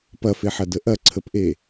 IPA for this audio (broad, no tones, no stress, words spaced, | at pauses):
pɐfeħɐdə ʔɐǀʰəpʔe